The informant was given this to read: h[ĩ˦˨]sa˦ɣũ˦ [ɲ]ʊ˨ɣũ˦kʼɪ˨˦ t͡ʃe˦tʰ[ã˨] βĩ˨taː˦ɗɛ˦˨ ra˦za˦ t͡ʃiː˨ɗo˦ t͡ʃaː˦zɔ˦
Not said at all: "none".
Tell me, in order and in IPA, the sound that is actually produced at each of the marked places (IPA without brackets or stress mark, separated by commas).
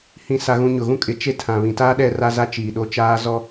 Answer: ĩ˦˨, ɲ, ã˨